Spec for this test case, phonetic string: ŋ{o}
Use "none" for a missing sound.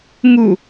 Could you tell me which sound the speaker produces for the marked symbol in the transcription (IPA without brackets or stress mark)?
u